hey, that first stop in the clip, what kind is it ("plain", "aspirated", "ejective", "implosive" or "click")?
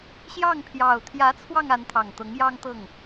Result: aspirated